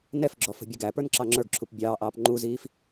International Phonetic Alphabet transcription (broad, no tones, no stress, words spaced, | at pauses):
nɛfɡ͡ǁɔ fə̤bʲəɡæpə˞n ǁɑŋ͡ǁə˞ɡǁʰup bʲɑːʔɑːp ŋ͡ǃuziːf